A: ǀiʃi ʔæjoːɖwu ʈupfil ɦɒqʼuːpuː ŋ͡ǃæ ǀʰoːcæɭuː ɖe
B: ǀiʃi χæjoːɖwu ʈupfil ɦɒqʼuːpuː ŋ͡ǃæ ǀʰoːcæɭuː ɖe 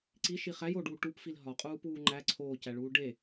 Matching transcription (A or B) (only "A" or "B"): B